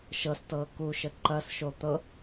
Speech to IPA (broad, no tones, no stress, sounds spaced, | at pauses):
ʃ ɤ s t ɤː k u ʃ ə ǃ ɐ s ʃ o t̪ ɤ